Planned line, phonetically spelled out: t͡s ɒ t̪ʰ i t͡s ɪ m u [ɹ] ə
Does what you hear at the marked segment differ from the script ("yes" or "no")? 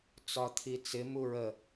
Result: no